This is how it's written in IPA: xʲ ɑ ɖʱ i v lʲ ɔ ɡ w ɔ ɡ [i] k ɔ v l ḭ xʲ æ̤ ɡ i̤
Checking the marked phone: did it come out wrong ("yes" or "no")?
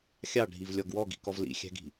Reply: yes